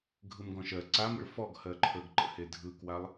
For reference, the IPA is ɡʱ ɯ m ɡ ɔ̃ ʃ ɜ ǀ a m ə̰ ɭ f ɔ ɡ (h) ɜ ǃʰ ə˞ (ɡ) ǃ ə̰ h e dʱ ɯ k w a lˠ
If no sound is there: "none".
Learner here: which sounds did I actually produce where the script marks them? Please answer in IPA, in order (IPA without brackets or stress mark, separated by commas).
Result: h, ɡ